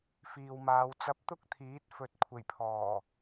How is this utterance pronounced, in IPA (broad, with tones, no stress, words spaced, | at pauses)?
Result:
fiː˨wmaː˨˧w t͡sɐ˧p̚t̪ʊ˥k̚t̪ʰiː˨˥t̚ fɵ˨t̚ kʷʰe˨˩jpʰɔː˨˩